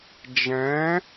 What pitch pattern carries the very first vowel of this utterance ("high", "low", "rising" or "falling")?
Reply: rising